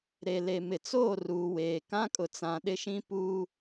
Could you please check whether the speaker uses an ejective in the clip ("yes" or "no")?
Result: yes